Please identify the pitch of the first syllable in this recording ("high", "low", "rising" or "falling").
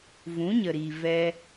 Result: rising